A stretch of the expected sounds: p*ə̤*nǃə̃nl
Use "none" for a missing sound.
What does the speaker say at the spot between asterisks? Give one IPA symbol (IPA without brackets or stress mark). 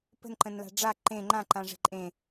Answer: ə̤